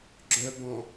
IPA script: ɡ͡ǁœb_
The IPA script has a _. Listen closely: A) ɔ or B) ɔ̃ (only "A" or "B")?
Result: B